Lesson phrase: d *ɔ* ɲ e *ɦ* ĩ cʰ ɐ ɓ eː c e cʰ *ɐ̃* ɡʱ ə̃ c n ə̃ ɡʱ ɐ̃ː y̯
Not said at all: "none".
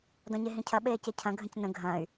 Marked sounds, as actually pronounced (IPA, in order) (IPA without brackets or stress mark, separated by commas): ɔ̃, ɦ, ɐ̃